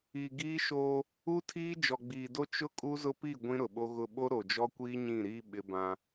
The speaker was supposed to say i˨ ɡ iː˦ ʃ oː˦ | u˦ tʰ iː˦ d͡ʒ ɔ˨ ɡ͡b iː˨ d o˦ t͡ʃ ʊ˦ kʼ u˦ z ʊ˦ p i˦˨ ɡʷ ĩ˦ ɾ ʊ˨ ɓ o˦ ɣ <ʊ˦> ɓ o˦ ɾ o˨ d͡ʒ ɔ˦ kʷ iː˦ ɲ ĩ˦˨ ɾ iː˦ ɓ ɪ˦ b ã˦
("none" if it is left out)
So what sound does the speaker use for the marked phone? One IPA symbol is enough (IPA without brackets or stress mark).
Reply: ʊ˦